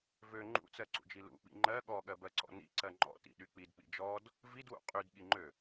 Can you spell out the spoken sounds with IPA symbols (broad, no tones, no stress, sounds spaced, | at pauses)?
v ø ŋ͡ǃ ṵ t͡s ɜ ǀ ṵ d͡ʒ i l ṵ ɓ ḭ ŋ͡ǃ ɜ ɠ ɔ ɠ ɜ b ɜ ǀ ɔ̰ n ḭ ǀ ɜ ŋ͡ǃ ɔ̰ t ḭ ɗ y k͡p i d k͡p ḭ d͡ʒ ɔ d | v i d w ṵ qʼ y d ɠ i ŋ͡ǃ ø